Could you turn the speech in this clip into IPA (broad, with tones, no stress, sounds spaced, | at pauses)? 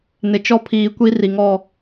n ɪ˨ t͡ʃ ɔ˦ pʰ iː˨ kʷ i˦ r i˨ ŋ ɔ˦˨